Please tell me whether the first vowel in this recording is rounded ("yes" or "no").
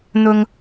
yes